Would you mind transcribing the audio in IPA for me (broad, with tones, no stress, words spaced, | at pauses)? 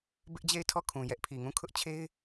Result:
bɪ˦ʔd͡ʑe˦˨ɪ̯tʰɔ˦˨kʰũ˨ jɛ˦ʔpʰi˨ŋũ˦˨ kʰʊ˦ʔt͡ɕʰe˦ɪ̯